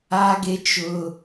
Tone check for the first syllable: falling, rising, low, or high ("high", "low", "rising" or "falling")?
high